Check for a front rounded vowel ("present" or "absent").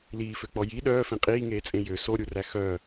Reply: present